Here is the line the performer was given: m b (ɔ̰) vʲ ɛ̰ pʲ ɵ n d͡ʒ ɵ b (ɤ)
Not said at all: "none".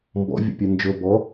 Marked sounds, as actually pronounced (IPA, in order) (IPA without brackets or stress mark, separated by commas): ɔ̰, ɔ